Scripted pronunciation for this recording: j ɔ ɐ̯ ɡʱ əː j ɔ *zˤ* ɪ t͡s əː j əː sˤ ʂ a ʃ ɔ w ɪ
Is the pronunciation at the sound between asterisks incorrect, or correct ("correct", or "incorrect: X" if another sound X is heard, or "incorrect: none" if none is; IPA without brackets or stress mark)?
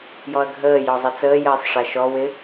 correct